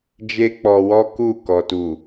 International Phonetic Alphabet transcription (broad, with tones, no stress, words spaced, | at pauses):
d͡ʒe˦k͡pɔ˧wɔ˦ ku˦˨ kɔ˨tu˨